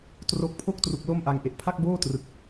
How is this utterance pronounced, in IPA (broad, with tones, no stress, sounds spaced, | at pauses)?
t r o˦˥ k̚ pʰ o˥˩ k̚ t r u˨˩ k̚ l o˥˩ m ʔ a˧ ŋ ʔ e˨˩ ʔ pʰ a˥˩ k̚ b oː˥˩ t r ɯ˨˩ k̚